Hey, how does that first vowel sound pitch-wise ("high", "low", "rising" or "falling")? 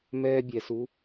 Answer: high